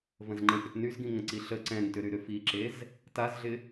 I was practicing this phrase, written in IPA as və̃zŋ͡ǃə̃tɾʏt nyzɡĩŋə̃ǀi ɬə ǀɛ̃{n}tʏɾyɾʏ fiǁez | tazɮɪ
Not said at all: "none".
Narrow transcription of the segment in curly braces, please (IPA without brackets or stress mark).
n